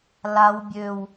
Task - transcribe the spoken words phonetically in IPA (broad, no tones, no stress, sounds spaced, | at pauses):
l a w bʲ ø w